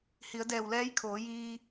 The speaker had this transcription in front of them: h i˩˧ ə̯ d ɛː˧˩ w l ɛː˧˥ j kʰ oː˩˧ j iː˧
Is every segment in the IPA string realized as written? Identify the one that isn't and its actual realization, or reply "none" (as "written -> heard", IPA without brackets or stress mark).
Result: none